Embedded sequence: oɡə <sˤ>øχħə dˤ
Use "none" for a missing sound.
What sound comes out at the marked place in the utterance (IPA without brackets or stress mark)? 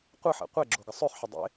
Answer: sˤ